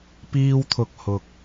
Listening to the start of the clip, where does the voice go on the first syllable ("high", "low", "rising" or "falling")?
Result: high